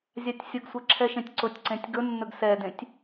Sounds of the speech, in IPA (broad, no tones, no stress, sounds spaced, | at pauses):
zʲ a tʲ sʲ ʊ ɡ sʷ ɛ ǁʰ ɛ ʃ ẽ tʲ ǀ ʊ tʲ ǀ ẽ tʲ ɡ ɵ nː ɵ ɡ s ɛ d ẽ tʲ